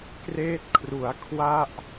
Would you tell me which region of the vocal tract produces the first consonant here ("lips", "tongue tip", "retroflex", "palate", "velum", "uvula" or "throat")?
velum